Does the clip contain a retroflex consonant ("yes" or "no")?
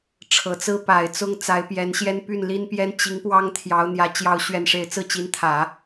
yes